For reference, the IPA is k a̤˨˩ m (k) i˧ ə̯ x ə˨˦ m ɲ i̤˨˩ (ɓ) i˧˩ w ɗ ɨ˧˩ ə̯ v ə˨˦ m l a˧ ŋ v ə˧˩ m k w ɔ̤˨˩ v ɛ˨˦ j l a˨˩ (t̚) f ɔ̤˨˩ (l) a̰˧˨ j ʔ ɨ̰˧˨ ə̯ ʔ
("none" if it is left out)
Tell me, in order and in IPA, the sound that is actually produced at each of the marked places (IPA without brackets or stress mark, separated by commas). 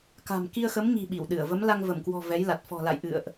k, ɓ, t̚, l